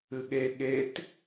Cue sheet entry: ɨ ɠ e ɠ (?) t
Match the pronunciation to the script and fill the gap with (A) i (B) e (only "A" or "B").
B